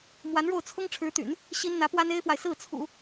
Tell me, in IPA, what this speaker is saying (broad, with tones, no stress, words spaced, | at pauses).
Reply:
mwa˧˥nɻo˥˩ʊ̯ t͡sʰʊ˥ŋ ʈ͡ʂʰɻ̩˧˥t̪y̰˨˩˦n | ɕi˥n n̪ä˧˥pwa˥ne˥ɪ̯fwa˨ɪ̯ sɹ̩˥˩t͡sʰṵ˨˩˦